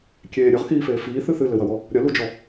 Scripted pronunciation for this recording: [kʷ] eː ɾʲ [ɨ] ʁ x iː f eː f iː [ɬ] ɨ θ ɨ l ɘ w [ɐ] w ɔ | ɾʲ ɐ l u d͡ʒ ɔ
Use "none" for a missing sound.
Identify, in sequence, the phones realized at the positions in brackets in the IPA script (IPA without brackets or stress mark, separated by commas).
kʲ, ɨ, θ, ɐ